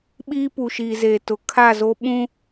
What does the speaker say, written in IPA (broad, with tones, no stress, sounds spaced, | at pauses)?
ɓ iː˦ p u˨ ʃ iː˨ z eː˨ t ʊ˨ kʰ a˦˨ z o˦ ɓ ũ˦